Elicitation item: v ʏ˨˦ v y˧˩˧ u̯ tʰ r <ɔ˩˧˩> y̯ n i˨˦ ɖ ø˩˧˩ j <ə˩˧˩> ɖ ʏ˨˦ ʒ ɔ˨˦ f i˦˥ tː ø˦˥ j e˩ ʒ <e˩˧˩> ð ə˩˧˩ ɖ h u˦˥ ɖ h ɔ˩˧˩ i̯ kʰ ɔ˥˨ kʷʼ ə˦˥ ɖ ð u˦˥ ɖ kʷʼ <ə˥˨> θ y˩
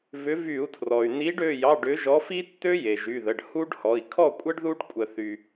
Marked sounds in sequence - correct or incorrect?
incorrect, incorrect, incorrect, incorrect

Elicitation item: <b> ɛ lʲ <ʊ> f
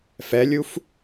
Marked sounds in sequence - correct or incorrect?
incorrect, incorrect

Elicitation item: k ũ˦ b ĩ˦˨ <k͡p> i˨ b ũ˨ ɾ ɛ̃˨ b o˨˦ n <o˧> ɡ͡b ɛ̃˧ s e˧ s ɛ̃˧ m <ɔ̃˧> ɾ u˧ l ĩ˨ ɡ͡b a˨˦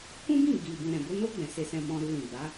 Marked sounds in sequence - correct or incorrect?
incorrect, incorrect, correct

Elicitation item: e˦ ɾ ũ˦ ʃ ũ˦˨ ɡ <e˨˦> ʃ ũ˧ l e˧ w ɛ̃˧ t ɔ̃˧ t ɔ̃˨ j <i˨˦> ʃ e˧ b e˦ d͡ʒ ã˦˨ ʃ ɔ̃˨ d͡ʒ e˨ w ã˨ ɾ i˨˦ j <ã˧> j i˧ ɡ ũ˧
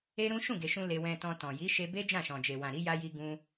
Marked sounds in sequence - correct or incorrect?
incorrect, correct, incorrect

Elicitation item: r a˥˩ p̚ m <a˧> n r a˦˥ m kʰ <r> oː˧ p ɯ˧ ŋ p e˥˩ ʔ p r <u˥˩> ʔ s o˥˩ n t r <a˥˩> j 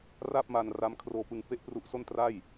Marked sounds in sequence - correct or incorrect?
correct, correct, incorrect, correct

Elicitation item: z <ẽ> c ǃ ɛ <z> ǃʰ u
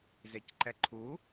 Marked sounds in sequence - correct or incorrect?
incorrect, incorrect

